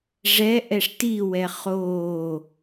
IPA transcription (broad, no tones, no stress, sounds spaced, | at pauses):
ʐ ɛ ʔ ɛ ʂ t i w ɛ χ oː